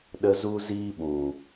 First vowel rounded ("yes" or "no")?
no